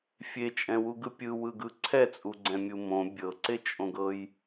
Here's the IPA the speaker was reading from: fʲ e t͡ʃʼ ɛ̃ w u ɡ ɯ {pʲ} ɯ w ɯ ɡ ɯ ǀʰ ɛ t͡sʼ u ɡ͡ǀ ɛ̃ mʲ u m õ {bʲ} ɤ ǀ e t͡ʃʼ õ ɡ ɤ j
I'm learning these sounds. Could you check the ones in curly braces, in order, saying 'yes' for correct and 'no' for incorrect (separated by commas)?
yes, yes